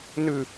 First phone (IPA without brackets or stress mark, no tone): n